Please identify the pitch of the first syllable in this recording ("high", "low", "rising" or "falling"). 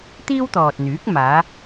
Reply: high